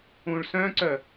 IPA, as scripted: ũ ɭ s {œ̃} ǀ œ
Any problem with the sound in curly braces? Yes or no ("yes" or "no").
no